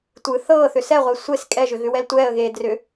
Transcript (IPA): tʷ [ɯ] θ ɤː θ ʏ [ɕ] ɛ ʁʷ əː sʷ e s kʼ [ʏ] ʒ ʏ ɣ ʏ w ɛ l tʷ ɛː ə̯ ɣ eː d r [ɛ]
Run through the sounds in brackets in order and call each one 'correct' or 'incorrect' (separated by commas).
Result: correct, incorrect, incorrect, incorrect